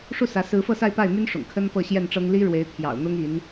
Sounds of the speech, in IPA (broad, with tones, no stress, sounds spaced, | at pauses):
ʂ u˥˩ s ä˧˥ s ɹ̩˧˥ f ɤ˥˧ s a˥˧ ɪ̯ p a˥˩ ɪ̯ m y˥ n ʂ ʊ̰˨˩ ŋ kʰ ə˥ n p ɤ˥˧ ɕ j ɛ˥˩ n ʈ͡ʂ ɤ˥ ŋ l i˥ ɻ w e˧˥ ɪ̯ t̪ʰ j ɑ̰˨˩ ʊ̯ n̪ ʊ˥ ŋ i˧˥ n